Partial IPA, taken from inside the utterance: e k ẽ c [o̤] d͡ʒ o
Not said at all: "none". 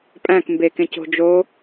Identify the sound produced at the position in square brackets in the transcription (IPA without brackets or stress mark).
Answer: o̤